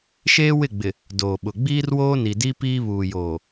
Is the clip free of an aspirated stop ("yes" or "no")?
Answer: yes